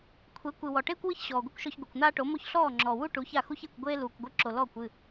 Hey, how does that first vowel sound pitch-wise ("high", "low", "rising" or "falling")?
rising